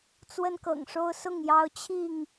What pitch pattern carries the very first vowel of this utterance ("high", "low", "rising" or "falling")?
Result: high